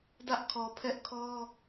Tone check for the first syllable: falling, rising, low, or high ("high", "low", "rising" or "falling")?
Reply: high